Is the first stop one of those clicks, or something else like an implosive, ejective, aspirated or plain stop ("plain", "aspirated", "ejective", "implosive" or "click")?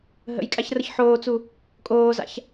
ejective